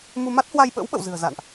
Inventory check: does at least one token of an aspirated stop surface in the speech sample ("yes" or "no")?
no